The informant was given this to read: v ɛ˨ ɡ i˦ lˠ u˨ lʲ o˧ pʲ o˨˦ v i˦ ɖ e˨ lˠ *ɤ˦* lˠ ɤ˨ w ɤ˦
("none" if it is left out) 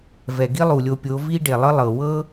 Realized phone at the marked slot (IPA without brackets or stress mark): ɤ˦